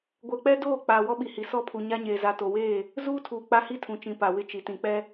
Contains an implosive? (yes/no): yes